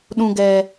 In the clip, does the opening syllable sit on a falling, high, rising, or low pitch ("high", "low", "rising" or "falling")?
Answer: low